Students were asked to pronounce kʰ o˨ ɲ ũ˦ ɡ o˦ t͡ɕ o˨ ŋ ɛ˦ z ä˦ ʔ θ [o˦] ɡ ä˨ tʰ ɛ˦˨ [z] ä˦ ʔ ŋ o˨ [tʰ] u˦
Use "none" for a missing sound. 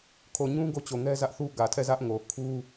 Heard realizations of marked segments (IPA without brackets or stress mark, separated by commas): u˦, z, kʰ